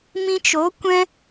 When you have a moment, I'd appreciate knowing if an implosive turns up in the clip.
no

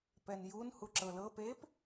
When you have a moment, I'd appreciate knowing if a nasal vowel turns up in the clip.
no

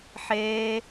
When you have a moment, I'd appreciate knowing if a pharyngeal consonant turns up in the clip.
yes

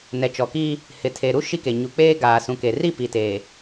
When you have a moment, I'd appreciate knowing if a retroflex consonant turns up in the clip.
no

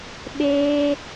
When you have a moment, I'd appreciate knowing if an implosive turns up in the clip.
yes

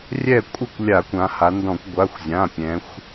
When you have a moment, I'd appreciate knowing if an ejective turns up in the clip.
yes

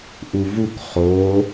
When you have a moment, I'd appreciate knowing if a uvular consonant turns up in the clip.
yes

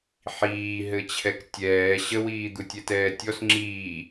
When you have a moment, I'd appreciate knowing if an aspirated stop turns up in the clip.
yes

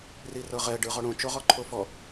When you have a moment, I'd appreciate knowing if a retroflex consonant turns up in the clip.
yes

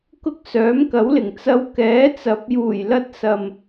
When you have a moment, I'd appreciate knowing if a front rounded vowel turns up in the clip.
yes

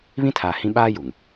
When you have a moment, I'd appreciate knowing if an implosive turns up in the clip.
yes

